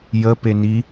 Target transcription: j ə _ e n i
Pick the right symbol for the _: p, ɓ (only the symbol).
p